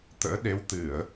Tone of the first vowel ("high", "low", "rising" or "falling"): rising